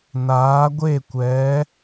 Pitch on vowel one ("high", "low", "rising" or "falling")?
rising